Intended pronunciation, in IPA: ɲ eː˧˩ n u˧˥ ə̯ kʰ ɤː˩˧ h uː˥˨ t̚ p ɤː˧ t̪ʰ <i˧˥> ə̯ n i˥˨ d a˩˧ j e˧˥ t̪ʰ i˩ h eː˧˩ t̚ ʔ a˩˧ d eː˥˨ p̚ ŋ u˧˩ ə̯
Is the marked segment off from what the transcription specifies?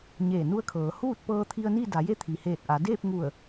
yes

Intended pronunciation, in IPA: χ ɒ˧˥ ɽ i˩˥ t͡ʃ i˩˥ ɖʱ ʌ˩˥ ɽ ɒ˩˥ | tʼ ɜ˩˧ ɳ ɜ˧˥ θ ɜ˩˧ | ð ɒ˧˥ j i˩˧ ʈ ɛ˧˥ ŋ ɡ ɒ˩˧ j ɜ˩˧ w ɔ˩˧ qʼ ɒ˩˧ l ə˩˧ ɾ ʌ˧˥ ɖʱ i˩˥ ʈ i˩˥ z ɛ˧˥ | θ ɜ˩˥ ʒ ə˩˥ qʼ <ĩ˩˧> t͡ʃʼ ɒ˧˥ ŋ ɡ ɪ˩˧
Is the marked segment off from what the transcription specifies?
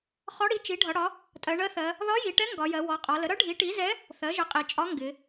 yes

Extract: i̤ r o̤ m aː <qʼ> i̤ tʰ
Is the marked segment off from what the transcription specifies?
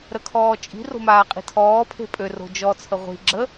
no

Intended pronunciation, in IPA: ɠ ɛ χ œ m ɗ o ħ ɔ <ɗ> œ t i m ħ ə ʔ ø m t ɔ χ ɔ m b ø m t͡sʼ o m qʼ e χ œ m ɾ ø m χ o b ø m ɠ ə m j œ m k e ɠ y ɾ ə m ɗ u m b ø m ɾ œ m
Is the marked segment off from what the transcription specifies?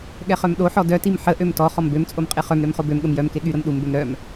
yes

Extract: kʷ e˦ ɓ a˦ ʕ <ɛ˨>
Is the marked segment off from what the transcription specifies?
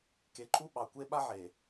yes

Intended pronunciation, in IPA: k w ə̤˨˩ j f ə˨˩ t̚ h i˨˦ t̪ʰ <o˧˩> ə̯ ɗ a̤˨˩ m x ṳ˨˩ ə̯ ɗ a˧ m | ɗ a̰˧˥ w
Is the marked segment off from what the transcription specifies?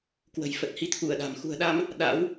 yes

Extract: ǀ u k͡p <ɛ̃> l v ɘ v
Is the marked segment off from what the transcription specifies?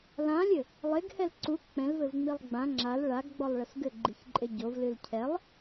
no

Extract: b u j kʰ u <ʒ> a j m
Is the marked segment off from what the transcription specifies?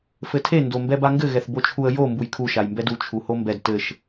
yes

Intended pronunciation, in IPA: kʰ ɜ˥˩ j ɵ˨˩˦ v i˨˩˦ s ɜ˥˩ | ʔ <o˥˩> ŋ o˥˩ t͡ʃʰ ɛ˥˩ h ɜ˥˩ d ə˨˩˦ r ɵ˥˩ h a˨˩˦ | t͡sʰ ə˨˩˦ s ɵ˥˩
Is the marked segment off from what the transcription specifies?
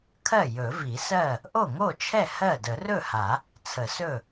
no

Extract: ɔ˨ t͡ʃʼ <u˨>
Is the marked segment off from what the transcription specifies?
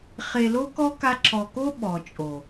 yes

